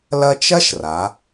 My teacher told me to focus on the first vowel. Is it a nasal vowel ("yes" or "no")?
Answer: no